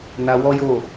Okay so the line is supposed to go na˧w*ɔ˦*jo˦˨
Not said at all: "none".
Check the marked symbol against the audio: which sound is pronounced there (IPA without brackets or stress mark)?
ɔ˦